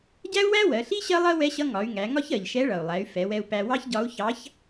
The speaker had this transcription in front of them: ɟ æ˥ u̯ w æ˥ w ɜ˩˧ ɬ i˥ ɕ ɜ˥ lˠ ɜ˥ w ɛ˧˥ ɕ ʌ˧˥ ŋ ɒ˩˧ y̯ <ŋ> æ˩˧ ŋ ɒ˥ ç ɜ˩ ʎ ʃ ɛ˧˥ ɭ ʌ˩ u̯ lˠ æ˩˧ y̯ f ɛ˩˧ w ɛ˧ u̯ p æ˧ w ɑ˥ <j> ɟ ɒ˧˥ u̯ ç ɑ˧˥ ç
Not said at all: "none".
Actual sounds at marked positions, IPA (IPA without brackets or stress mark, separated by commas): ŋ, ç